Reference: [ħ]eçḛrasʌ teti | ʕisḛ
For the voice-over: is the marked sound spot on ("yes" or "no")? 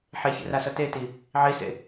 yes